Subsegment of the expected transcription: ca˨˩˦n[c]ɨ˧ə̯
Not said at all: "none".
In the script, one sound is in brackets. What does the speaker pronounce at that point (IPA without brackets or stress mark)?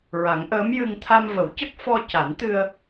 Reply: t̪